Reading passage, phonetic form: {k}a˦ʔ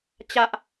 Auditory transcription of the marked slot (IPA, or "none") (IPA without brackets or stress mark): t͡ɕ